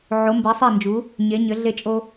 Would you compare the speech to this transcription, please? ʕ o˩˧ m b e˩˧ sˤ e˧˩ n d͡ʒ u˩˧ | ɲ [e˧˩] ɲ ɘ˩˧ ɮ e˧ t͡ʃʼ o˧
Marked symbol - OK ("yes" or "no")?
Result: no